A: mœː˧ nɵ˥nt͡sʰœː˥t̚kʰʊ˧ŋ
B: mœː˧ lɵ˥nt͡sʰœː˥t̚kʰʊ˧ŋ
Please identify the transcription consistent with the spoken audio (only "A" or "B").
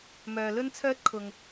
B